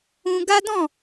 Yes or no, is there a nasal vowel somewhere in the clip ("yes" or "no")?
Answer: yes